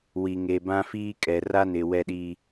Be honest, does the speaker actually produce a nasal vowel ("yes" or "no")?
yes